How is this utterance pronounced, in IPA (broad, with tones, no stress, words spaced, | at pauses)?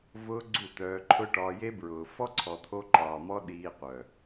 vʊː˧ ɡ͡ǀu˦˨t̪œː˧ǃʰʊ˦ ʈɒː˧je˦bɹʊː˨ fɔ˦ǀʰɔ˨t̪ʰo˧ ǃɒː˨mɔ˦ɗiː˧qʷœ˨